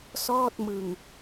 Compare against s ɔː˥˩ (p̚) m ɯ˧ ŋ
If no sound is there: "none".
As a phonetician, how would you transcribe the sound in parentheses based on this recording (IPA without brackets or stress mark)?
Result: t̚